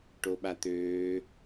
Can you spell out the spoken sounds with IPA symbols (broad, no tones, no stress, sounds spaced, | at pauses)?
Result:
ʈ o ɓ a t̪ øː